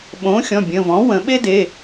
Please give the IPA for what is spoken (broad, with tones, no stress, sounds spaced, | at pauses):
ɓ õː˩˥ xʲ ɔ̃˩˧˩ bʲ ə̃˩˧˩ v ɔ̃˩˥ w ə̃˨˩˦ ɓ e˥ d e˩˧˩